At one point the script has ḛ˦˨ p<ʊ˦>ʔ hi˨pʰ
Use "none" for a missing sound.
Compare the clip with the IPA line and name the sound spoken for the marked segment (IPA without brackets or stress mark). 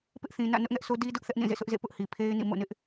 ʊ˦